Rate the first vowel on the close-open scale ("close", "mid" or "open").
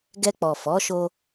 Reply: mid